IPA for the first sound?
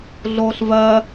ɮ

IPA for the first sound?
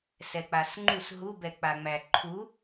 s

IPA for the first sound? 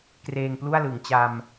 k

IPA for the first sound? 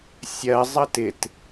sʲ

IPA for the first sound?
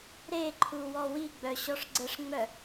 ɾ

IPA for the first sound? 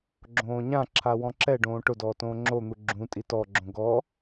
ɡ͡ǁ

